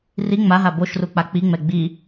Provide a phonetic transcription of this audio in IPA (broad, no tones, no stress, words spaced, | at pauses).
ri ŋ͡maɦa boʃru k͡pak͡piŋ͡mɛ ɡ͡bi